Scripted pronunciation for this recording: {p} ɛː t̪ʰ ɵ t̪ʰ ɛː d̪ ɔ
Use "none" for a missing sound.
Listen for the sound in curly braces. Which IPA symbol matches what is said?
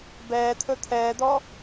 b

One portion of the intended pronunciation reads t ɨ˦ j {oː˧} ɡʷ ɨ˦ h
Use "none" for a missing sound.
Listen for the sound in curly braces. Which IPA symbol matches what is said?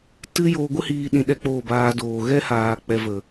oː˧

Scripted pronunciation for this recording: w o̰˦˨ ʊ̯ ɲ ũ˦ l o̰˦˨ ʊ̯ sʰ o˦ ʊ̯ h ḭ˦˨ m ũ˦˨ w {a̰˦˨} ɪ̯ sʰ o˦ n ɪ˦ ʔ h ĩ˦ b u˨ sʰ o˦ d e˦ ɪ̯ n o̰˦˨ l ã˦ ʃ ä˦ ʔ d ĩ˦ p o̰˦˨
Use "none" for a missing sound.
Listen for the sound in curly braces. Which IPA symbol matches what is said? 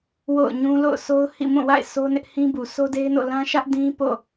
a̰˦˨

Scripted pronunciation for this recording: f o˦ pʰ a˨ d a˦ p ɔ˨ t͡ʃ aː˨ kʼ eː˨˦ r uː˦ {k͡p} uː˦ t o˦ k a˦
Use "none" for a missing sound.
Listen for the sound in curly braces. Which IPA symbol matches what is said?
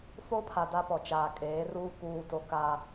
k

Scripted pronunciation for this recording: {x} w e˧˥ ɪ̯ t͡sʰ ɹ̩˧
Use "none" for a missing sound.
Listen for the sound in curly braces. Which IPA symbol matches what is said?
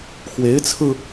x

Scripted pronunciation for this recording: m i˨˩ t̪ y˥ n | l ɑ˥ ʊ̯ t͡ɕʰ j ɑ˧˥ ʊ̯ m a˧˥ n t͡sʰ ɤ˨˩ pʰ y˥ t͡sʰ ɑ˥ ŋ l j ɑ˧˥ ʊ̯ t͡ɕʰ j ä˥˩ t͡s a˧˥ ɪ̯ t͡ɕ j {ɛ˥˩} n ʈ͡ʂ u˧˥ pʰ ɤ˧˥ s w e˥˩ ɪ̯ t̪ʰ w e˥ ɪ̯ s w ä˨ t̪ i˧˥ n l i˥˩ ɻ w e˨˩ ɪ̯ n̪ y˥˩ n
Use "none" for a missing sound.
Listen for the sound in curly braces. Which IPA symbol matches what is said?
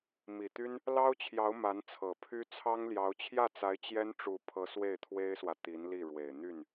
ɛ˥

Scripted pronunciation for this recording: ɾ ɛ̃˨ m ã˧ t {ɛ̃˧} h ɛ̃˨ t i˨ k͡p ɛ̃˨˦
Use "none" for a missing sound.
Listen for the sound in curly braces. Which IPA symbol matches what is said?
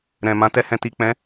ɛ˧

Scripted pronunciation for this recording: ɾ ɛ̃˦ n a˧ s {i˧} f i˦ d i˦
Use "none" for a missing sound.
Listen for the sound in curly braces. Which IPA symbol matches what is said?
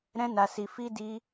i˧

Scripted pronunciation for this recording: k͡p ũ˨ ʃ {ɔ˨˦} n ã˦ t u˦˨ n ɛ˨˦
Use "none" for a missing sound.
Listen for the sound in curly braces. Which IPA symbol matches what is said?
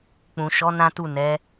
ɔ˨˦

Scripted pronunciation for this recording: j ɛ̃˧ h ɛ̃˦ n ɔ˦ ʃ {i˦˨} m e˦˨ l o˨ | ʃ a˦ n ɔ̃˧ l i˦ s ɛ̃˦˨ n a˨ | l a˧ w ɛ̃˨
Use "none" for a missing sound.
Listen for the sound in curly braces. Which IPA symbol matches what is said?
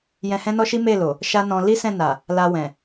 i˦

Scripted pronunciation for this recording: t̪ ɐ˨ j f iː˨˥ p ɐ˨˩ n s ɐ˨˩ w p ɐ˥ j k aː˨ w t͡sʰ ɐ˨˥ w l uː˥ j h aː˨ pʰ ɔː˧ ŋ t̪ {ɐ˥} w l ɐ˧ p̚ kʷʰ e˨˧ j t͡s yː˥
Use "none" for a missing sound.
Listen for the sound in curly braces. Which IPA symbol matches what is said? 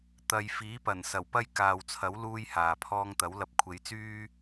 ɐ˨˥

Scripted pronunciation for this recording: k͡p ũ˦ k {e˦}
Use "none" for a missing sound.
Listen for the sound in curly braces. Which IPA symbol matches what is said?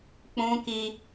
i˦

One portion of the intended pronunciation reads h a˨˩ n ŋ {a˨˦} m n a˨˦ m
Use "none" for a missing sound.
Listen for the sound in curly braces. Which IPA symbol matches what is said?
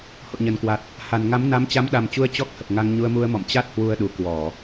a˨˦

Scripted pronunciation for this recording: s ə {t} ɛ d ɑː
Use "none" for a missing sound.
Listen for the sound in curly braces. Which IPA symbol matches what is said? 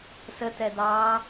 t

